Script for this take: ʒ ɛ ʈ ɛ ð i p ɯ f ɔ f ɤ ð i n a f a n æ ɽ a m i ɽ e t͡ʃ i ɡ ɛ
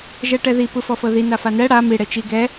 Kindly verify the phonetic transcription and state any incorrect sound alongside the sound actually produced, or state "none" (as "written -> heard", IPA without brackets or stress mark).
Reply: æ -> ɛ